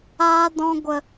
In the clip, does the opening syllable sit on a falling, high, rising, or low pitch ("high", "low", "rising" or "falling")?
high